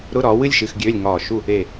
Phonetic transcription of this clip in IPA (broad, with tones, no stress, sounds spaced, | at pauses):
ɾ ʊ˧˥˧ ɾ ɒː˨˥ w ɨ˧˥˧ lʲ ʃ ɨ˧˥˧ x ɡʲ øː˧˥˧ lʲ ŋ ɒː˧˩ ʃ u˥˨ | e˧˩